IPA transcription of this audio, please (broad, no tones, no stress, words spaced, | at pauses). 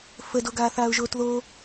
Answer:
fədo ɡaːθaːʊ̯ʒoːtðo